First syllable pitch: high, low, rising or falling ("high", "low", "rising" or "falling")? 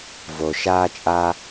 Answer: low